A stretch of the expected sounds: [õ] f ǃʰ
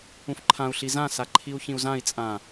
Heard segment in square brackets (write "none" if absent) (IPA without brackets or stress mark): ũ